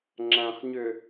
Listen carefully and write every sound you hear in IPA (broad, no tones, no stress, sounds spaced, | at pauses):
ŋ͡ǁ æ̃ χ ɲ ʏ